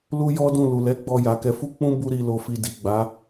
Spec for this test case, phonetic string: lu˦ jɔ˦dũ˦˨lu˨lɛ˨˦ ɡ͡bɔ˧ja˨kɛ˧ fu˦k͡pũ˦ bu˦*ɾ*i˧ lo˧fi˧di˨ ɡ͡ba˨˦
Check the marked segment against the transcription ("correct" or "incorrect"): correct